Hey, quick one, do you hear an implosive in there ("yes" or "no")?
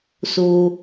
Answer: no